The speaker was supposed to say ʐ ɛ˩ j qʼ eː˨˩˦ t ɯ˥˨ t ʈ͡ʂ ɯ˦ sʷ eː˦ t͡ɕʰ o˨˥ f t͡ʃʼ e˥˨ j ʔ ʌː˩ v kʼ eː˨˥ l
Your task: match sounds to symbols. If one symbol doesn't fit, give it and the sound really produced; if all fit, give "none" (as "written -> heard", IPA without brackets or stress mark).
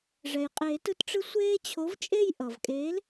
f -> v